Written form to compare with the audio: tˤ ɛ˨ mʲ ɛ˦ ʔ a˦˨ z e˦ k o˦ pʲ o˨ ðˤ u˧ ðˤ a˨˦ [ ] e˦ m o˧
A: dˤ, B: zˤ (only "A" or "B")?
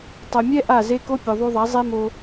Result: B